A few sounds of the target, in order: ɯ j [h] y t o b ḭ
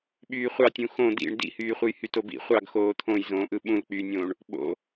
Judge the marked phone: correct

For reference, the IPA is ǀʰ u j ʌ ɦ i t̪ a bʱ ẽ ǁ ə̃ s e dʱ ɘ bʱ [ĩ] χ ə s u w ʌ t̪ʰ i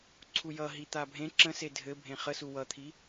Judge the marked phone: incorrect: ẽ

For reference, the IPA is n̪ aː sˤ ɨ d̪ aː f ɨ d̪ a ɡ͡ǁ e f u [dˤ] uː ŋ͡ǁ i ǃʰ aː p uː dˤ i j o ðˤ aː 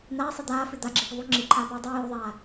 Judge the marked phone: incorrect: ðˤ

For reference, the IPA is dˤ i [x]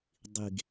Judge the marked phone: incorrect: ɡ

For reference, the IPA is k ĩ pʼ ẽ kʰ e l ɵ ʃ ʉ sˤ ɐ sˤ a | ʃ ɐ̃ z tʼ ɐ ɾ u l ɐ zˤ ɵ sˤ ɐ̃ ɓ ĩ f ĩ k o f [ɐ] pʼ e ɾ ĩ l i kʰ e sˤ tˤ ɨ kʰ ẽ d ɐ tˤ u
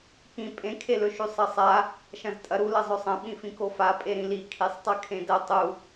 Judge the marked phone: incorrect: a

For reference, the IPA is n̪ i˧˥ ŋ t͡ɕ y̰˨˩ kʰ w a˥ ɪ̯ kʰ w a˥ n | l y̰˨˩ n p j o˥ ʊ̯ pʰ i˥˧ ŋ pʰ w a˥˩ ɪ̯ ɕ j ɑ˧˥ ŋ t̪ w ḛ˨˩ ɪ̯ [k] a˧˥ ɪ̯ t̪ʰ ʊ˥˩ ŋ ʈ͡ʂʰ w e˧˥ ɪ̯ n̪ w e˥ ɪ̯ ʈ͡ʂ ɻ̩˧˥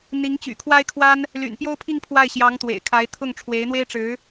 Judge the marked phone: incorrect: kʰ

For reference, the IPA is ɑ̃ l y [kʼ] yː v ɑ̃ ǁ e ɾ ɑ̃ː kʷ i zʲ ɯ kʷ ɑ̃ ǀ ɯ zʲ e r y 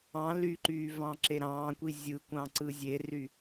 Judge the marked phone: incorrect: ǃ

